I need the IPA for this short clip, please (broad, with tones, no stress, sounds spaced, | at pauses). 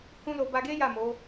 h ũ˦ l o˧ b a˧ ɡ e˦ j a˦˨ m o˨˦